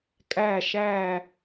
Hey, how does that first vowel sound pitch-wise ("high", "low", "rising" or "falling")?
falling